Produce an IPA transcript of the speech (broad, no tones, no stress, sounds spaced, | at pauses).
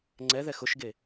ŋ͡ǀ ɛ ð ɛ x ʊ ʃ ɡ e